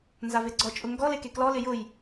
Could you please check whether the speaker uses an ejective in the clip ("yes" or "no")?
yes